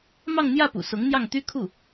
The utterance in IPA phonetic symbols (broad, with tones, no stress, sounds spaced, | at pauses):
m ɑ˥˧ ŋ n̪ j ä˥˩ p ṵ˨˩ s ʊ˧˥ ŋ n̪ j ɑ˥˩ ŋ t̪ y˥ kʰ u˥˩